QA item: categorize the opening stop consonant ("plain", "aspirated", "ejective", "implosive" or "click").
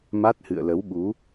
plain